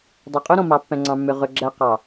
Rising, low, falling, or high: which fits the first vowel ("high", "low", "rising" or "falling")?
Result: low